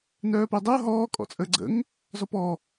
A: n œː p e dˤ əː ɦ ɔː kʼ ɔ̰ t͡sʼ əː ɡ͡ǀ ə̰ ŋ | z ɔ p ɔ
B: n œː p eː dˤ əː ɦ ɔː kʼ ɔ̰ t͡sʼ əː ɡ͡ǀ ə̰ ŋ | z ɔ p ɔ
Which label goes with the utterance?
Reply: A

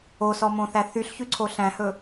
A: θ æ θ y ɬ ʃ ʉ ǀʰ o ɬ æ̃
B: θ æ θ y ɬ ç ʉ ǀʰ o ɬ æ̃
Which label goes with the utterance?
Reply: B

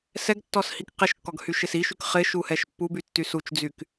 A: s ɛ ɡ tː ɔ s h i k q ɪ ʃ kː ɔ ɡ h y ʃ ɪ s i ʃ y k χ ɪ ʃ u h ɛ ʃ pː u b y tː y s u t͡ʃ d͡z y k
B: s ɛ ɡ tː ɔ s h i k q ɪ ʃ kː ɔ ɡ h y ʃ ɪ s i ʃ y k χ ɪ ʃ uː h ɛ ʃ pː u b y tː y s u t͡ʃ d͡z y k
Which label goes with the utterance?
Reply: A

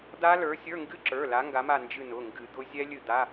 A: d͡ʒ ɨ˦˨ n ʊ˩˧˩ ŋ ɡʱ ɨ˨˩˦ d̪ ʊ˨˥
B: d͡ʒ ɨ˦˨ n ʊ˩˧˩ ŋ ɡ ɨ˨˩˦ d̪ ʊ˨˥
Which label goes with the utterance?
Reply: B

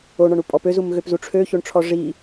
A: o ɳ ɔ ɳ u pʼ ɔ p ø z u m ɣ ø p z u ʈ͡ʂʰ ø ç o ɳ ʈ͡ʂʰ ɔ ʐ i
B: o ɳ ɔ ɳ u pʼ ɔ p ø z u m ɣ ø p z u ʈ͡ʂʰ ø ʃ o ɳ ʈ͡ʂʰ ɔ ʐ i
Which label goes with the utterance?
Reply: A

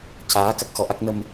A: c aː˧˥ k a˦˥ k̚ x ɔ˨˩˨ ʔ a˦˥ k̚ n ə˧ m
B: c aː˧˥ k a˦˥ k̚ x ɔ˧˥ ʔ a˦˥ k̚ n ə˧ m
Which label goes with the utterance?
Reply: B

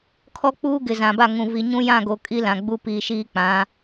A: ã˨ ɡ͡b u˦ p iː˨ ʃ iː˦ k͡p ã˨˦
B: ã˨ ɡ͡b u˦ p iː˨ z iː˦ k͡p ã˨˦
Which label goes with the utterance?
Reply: A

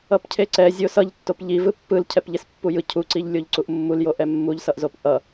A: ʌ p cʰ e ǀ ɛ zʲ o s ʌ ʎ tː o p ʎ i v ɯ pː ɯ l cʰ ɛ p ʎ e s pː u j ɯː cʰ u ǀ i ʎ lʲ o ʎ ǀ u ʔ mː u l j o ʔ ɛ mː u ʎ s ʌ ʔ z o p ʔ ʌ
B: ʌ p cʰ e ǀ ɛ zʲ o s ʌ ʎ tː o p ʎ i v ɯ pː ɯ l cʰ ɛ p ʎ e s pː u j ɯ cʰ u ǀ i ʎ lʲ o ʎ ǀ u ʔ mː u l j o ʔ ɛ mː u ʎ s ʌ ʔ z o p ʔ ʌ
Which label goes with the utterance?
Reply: B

